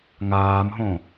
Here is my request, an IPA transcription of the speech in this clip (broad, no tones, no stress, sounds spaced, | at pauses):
ŋ aː m ɦ õ